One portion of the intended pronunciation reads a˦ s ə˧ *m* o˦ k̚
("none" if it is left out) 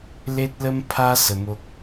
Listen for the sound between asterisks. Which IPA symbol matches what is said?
m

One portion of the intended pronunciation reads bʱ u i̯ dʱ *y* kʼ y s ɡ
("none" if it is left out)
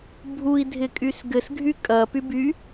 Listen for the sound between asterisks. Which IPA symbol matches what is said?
ɪ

